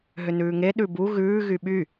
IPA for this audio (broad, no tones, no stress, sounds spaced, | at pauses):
ɦ ʏ n ʉː ŋ e ɗ ʉ b u ɣ ʉː ɣ y ɓ y